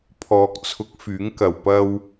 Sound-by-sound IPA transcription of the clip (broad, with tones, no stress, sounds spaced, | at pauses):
pʰ ɔː˨ k̚ t͡sʰ ʊ˨˥ k̚ f yː˨˥ ŋ k ɐ˨ w p ɐ˥ w